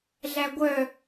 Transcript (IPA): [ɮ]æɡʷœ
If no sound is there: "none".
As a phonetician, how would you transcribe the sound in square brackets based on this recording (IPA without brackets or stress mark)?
ɮ